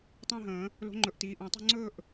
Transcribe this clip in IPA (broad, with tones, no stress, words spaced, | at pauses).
tˤə̃ː˥˧ɦə̃ː˨˩˦ | lo̤˧˥ŋ͡ǃɵ˨˩˦ʔtiː˩˧˩ ʔə̃ː˨˩˦tˤo̤˥˧ ŋ͡ǀɵː˥˧ʔ